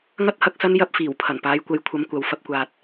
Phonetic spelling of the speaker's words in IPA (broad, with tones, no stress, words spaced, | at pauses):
ŋɐ˥t̚hɐ˧k̚sɐ˥n jɐ˧p̚fiː˨˩wpʰɐ˨˩n paː˨˧jkʷɐ˨˧jkʷʰɐ˨˧m kʷɐ˨w fɐ˧p̚kʷaː˨t̚